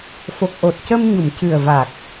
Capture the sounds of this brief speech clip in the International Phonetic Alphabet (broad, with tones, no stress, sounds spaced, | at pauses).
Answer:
f o˨˩ k̚ ʔ o˨˩ t̚ c ə˧ m ɲ u˨˩˨ m c ɨ˨˩ ə̯ v a˨˩ k̚